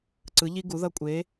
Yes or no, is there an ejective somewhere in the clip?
yes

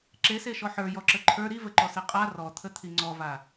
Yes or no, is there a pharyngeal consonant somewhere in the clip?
yes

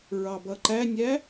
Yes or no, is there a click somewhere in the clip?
yes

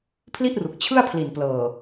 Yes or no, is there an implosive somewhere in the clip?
no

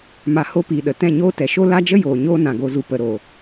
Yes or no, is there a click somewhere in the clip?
no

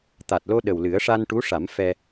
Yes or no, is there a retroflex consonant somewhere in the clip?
yes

